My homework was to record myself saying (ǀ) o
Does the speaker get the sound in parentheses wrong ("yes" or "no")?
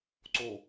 no